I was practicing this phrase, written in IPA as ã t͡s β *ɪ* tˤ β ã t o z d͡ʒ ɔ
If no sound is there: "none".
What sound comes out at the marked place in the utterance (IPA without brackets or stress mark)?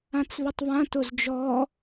ɪ